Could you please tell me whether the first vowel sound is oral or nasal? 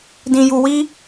nasal